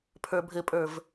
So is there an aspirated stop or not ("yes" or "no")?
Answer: yes